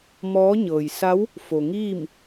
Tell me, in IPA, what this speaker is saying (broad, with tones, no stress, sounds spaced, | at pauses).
m ɔː˧˥ ɲ ɤː˩ j s a˧˥ w | f o˩ ŋ iː˥˨ m